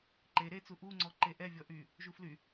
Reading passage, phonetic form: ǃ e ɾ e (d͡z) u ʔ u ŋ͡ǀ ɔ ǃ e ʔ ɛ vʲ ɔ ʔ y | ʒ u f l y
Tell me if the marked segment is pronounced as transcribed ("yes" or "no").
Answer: no